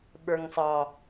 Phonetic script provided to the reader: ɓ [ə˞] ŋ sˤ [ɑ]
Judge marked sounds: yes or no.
yes, yes

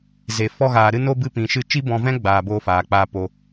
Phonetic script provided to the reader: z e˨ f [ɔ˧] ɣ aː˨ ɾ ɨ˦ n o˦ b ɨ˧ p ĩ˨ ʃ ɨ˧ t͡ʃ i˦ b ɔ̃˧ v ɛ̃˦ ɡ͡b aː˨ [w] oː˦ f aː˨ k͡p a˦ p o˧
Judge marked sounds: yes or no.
yes, no

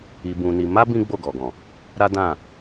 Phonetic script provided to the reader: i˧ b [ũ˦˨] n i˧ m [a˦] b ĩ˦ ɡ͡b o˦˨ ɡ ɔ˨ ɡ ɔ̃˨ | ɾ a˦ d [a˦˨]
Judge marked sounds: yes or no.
no, yes, no

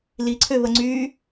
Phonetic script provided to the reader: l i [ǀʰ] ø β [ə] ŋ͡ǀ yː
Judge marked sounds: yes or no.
yes, yes

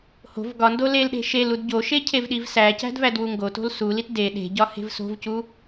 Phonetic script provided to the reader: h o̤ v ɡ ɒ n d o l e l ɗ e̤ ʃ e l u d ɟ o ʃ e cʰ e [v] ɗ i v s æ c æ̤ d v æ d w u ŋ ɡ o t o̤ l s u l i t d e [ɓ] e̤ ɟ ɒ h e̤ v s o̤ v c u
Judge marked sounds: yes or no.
yes, no

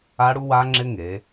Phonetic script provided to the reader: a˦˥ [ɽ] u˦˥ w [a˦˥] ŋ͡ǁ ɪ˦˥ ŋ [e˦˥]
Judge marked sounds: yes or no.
yes, yes, no

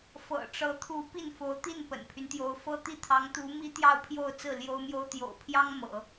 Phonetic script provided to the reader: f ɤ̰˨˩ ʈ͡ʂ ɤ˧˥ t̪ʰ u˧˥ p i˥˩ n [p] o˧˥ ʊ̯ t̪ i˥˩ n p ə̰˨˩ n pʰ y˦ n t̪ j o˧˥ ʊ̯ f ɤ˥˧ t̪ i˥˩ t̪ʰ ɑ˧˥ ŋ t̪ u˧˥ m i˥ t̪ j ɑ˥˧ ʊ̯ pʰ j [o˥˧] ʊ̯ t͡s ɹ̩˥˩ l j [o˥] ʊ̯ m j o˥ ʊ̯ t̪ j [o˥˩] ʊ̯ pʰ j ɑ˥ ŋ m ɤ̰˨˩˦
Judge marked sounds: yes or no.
no, yes, yes, no

